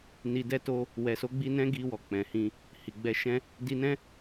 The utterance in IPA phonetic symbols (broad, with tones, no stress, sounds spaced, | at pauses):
n i˧ d ɛ˦ t o˦ | w ɛ˨ s o˨˦ ɡ͡b i˧ n ɛ̃˦ ɡ i˧ w ɔ˨ k͡p ɛ̃˨ h ĩ˧ | h i˨ ɡ͡b ɛ˧ ʃ ɛ̃˦ | d i˧ n ɛ̃˦